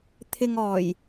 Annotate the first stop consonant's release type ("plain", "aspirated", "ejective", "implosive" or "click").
aspirated